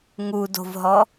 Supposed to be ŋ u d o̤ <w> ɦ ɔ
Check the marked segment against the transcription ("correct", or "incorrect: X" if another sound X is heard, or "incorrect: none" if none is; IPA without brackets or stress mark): incorrect: v